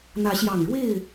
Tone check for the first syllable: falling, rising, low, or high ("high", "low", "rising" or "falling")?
rising